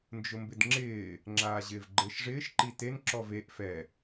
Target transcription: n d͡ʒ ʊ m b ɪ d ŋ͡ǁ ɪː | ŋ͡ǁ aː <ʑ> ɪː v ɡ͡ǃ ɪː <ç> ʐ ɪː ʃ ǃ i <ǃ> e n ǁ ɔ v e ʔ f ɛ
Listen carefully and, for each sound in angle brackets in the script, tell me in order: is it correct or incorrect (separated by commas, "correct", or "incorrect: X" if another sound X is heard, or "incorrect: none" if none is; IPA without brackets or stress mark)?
correct, incorrect: ʃ, incorrect: t